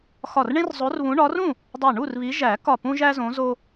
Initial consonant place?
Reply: velar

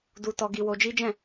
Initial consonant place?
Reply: alveolar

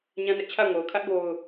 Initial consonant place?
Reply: palatal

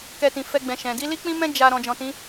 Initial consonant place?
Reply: velar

